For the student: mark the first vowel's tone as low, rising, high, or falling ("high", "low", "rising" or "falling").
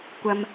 low